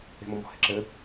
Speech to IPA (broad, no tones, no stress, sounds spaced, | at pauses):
e̤ m ɔ m ɔ̤ h e ǁ ɘ